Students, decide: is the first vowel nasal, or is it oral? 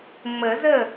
oral